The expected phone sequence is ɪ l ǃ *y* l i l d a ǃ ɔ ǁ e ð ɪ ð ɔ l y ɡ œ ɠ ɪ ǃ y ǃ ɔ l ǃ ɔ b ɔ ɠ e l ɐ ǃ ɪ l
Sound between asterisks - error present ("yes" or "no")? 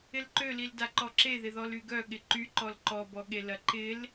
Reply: yes